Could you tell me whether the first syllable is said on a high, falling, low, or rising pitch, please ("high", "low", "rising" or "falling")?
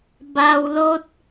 low